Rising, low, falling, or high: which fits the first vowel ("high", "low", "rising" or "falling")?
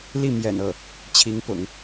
falling